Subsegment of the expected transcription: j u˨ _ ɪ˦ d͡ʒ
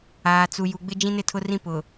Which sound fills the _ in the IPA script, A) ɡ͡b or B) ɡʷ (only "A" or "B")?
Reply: A